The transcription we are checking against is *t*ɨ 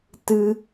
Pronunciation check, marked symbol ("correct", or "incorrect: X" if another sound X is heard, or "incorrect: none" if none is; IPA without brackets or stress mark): correct